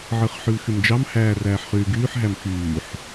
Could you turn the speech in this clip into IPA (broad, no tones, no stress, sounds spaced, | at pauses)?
ʕ ɯ χ ħ y l x y m d͡ʒ ɑ m h æː r æː ħ χ yː ɡ yː ħ ɦ æ m x yː ħ